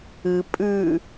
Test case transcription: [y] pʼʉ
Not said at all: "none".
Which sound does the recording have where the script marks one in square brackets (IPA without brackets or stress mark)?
ɨ